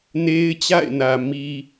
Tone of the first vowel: high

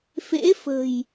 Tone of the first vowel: rising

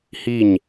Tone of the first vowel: falling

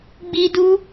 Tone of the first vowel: high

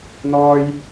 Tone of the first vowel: high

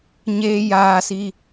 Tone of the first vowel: high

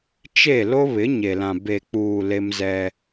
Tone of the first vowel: falling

